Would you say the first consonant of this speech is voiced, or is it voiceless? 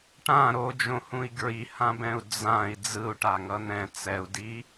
voiceless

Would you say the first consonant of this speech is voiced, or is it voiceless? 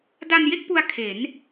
voiced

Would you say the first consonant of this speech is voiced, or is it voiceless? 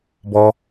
voiced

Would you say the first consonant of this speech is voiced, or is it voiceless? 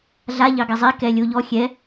voiced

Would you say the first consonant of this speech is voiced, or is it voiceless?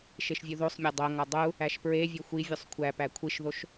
voiceless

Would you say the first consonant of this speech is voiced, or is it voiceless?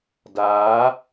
voiced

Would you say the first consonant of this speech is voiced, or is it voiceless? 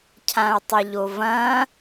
voiceless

